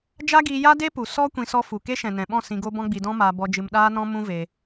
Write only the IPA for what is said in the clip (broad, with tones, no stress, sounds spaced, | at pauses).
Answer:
d͡ʒ a˦ ɡ iː˧ j a˦ d e˦ p u˨ s ɔ˦ kʷ ĩ˧ s ɔ˦ f u˨ k e˦ ʃ ɛ̃˨ n ɛ̃˨ ɓ ɔ̃˦˨ s ĩ˧ ɡ o˦ b ɔ̃˦ ɡ͡b i˧ d ɔ̃˦ m aː˧ b ɔ˧ d͡ʒ ɨ˧ m ɗ aː˦ n ɔ̃˦ m ũ˦ v e˧